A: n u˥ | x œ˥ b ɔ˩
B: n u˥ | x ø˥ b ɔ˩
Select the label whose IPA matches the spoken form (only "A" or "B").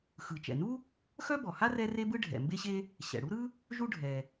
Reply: A